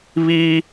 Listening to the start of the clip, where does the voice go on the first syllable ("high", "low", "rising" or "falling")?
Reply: high